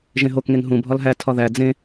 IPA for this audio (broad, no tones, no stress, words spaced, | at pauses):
ʒẽɦokŋeŋ ɦũ bʱɒlɦæ tʰɒðæ d͡zẽ